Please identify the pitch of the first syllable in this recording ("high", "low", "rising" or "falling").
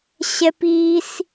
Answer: high